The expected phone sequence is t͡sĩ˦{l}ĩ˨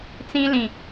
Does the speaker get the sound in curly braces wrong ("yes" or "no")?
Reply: no